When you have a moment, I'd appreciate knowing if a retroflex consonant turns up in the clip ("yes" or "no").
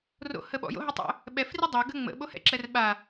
no